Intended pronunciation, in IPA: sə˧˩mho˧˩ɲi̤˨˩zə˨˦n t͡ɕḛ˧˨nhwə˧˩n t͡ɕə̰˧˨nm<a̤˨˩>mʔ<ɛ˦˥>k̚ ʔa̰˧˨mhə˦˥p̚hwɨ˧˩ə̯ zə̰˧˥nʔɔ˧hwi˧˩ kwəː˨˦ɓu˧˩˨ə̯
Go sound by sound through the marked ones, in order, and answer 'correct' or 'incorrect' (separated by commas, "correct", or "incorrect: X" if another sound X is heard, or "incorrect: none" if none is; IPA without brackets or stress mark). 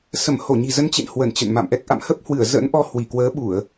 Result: incorrect: a̰˧˨, correct